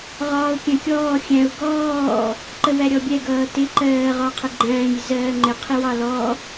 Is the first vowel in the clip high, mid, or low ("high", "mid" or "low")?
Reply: low